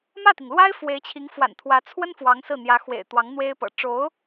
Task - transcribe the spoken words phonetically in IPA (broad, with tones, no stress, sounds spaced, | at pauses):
m ä˥˩ t̪ i˩ ŋ l w a˥ ɪ̯ f w e˧˥ ɪ̯ t͡ɕʰ i˧˥ ŋ f w a̰˨˩ n t̪ʰ w ä˧˥ t͡sʰ w ə˥ n f w ɑ˧˥ ŋ s ɹ̩˥˩ n̪ j ä˧˥ x w ḛ˨˩ ɪ̯ t̪ w ɑ˧˥ ŋ n̪ w e˥ ɪ̯ p ɤ̰˨˩ ʈ͡ʂ o˧˥ ʊ̯